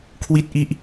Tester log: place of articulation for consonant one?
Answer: velar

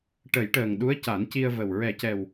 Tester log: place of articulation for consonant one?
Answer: retroflex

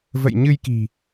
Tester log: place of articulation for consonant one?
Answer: labial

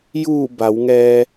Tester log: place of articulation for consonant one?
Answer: palatal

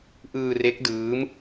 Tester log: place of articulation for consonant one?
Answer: glottal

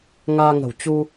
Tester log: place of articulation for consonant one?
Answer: velar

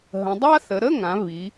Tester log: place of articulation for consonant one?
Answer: glottal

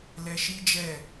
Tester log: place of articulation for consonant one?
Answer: alveolar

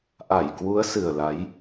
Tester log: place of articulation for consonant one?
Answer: glottal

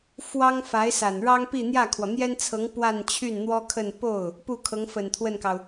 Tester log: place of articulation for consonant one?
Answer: labial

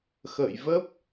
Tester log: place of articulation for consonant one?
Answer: velar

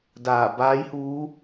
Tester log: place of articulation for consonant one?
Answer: alveolar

